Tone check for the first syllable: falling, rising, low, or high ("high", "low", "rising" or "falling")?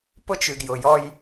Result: high